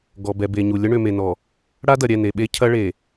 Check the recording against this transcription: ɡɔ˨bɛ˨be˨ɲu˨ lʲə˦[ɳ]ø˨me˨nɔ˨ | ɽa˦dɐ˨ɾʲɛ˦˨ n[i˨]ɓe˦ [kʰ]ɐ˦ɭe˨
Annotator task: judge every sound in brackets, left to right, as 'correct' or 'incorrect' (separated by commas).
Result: correct, incorrect, incorrect